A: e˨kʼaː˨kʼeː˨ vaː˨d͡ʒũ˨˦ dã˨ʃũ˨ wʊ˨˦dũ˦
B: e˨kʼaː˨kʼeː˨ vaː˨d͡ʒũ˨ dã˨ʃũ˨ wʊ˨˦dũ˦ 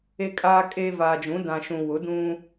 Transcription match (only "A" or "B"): A